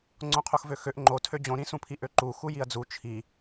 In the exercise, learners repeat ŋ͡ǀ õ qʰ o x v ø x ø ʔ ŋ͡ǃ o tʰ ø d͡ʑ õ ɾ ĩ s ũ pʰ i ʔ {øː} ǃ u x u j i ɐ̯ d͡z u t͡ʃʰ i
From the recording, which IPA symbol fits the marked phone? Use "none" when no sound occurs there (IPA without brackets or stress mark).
ø